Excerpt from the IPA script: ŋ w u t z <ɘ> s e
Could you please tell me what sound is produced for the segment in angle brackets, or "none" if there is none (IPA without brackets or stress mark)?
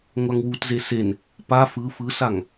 e